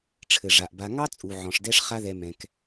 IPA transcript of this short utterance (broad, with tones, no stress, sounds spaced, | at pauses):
ʈ͡ʂʰ ɘ˨ ʐ a˨ ʔ b a˧ ŋ ɑ˦ t͡sʼ u˨ ʕ ɔ̃˨ ʂ d ɛ˦ ʂ χ a˦ ð ɛ˧ m ɛ̃˧ k